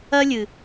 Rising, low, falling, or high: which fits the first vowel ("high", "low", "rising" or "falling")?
high